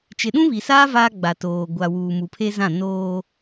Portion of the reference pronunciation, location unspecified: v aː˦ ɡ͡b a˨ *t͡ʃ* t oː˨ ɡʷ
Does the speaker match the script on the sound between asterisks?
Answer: no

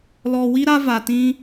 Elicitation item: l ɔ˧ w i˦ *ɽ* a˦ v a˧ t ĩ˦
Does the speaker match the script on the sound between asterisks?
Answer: no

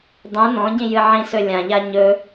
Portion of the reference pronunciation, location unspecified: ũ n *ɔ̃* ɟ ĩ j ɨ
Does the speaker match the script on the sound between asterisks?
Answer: yes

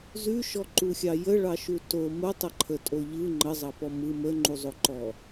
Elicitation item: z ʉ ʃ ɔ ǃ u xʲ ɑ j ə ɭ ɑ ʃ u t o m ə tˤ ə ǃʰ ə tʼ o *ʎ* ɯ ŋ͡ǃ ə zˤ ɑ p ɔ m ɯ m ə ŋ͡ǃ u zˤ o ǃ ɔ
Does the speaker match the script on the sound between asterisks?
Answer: yes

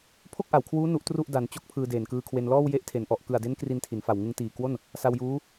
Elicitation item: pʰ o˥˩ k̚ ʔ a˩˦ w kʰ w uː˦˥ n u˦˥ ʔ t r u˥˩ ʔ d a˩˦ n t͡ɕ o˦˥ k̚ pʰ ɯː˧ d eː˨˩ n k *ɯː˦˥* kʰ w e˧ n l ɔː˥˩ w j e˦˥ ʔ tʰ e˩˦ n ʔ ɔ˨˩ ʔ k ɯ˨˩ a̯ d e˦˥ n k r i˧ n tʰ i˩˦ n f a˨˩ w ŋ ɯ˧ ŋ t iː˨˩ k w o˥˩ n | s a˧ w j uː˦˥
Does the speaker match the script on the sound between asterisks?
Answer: no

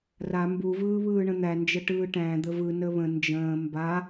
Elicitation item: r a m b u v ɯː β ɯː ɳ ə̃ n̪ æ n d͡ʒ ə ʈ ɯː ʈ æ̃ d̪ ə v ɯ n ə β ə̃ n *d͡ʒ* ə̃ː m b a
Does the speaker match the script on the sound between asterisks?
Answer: yes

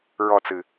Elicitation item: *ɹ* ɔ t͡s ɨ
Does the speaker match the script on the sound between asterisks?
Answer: yes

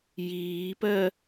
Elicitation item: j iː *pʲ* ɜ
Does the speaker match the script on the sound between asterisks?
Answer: no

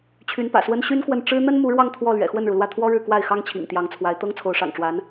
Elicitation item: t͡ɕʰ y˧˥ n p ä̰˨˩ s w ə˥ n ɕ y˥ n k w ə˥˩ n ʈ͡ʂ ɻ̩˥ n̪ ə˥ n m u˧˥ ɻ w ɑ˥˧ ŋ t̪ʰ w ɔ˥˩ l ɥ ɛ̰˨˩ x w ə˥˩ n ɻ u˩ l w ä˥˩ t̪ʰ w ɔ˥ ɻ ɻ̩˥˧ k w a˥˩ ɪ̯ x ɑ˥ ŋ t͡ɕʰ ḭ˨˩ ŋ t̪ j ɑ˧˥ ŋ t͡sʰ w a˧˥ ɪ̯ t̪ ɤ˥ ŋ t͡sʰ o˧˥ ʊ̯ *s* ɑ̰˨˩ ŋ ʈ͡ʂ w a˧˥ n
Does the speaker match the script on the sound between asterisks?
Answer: no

